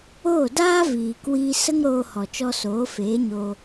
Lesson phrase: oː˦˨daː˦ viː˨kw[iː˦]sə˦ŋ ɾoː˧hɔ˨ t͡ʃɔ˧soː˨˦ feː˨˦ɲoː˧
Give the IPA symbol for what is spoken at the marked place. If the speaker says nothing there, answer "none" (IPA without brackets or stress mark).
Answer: iː˧